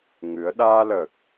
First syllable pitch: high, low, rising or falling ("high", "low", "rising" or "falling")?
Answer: rising